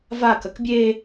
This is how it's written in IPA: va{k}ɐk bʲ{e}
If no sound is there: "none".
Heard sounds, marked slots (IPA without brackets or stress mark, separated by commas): k, e